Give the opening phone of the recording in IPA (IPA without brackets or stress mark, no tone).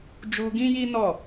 d͡ʒ